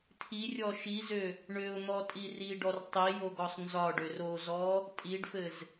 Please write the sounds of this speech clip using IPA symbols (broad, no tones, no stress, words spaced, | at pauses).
tʰirʲɔ ʃizø | ɳøʊ̯n̪ɔtʼi riɖɔr tˤijoɡɔsˤ nzɒɖør ozɔ | tʼiɖfɘz